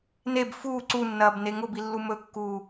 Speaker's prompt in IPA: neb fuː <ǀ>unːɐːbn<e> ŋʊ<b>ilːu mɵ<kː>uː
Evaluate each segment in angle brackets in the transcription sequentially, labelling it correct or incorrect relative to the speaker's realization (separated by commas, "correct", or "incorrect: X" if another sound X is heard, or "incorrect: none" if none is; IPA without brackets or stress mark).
correct, correct, correct, correct